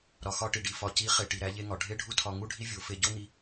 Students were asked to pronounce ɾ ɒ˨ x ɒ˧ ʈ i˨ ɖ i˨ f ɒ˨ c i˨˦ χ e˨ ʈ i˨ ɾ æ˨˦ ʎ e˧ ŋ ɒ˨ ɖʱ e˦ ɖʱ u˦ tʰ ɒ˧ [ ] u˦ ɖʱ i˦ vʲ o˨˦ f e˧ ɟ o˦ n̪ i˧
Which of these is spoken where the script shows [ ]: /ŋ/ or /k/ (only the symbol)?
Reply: ŋ